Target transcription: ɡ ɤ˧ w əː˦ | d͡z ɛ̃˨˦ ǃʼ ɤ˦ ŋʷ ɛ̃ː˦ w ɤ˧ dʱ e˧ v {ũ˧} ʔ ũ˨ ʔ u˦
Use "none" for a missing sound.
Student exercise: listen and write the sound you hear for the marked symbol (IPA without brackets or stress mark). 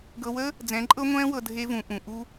ũ˨